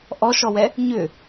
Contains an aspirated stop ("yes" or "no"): no